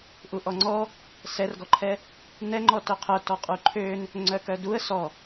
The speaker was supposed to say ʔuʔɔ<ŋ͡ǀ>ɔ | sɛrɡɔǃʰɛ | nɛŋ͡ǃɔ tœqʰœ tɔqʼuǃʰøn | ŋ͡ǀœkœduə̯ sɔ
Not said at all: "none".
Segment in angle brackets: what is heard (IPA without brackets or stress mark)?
ŋ͡ǀ